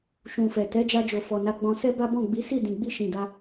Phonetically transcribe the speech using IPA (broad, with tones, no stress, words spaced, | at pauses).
ʃũ˨fɛ˨ tɛ˨˦d͡ʒa˧d͡ʒo˨fɔ˨ na˧ɡ͡bɔ̃˧sɛ˦ba˦ bɔ̃˦˨ɡ͡bi˨˦si˦˨ dĩ˨ɡ͡bi˧ ʃĩ˨da˧